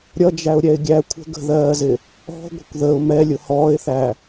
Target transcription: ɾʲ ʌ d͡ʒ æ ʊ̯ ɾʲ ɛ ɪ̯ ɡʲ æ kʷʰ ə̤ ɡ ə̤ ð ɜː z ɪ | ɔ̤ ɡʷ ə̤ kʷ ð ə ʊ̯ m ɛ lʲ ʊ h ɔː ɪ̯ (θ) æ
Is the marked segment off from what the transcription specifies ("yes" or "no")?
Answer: no